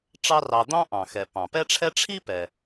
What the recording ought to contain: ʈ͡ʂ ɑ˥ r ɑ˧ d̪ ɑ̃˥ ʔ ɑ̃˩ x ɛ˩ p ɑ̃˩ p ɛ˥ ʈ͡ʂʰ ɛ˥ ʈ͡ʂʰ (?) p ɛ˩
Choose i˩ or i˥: i˥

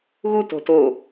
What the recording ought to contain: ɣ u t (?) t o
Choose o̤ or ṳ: o̤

